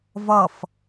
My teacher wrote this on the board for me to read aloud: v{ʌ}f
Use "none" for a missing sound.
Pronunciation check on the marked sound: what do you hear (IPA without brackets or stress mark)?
ʌ